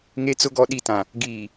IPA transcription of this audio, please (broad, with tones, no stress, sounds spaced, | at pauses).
ŋ e˨ t͡s ʊ˨ ɡ ɔ˨ ɗ i˨ t ã˨ | ɡ iː˨